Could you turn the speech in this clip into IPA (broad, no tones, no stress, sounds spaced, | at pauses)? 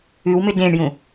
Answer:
ʉ w m ʏ d ẽ ɳ j ũ